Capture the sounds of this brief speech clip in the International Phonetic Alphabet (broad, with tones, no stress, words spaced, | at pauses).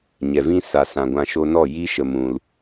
ɲɛ˨vĩ˦ sa˨sã˨ ɡʷã˧ʃo˦ nɔ˦˨ji˦ʃə˨ mũ˨l